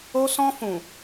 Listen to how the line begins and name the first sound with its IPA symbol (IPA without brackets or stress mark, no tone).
o